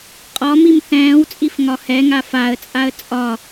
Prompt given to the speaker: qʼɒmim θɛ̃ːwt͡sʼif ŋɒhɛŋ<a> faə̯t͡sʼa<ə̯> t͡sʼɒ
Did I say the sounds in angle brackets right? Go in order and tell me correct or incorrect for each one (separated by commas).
correct, correct